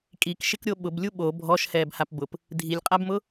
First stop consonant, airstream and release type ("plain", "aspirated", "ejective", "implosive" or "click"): ejective